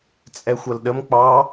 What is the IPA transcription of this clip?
t͡sʼɛxʷɐlɗəm k͡pɑ

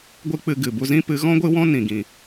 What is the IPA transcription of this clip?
ɡʷɨ˦k͡pɨ˧ ɡɨ˨bu˧zĩ˦ pɨ˨˦ ɣɔ̃˦ɡʷɨ˦wɔ̃˦ nĩ˨ɡĩ˨

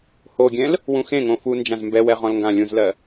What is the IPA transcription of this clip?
hoɡʲɛ̃l | wũxẽŋõ fu nd͡ʒãzmbɛwɛ ʁɔ̃lŋɡãlʲũzlɜ

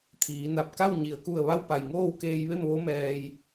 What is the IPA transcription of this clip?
t̪ʰiː˩˧na˧˩p̚ ka˥˨w ɲi˩ə̯ku˧˩ə̯ ʋa˥˨wpa˧˩jŋoː˥˨wkeː˧j ʋe˥˨mʋo˧˥ mɛː˧j

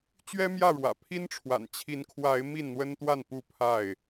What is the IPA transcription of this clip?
t͡ɕɥɛ˦mjä˥˨ɻwä̰˨˩pʰi˦n ʈ͡ʂʰwa̰˨˩nt͡ɕʰi˨˦n kʰwa˨˦ɪ̯ mi˥˨nn̪wə˦nt̪wa˥˨n pu˥˨pʰa˥˨ɪ̯

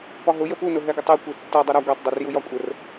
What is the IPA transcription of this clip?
pɒɦʊ jəpunʊ ɦɛɡʊtˤe kʷitːɔ dˤʌɾɒ ɡʷɛtˤ dˤurjujɒkʷʼər

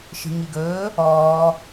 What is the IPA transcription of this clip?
ʃi̤ŋiɡɵː | ɔː

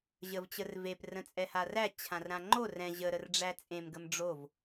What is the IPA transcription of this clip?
ʑəvt͡ɕər vep rə̃t͡sʼɛharæ t͡ɕʰãrɾãŋ͡ǃo rɛ̃ ʑə ɾərɖ͡ʐæt͡sʼẽm ɡəmɖ͡ʐov

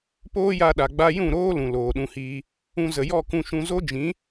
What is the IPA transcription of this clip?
poː˦ja˧ɗa˨ ɡ͡ba˧jũ˦˨ɾoː˦ lũ˨loː˨ɗũ˧hiː˧ | ũ˧zə˨jɔ˦˨ kũ˧ʃũ˧ zo˦d͡ʒĩ˨˦

